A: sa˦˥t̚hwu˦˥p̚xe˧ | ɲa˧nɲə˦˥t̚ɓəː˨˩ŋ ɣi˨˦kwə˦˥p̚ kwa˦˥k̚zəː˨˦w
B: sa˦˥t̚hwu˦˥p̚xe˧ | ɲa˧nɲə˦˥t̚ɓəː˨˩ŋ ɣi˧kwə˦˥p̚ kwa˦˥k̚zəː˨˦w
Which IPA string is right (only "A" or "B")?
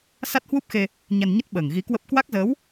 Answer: A